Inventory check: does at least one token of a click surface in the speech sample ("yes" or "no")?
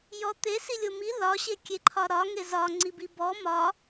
yes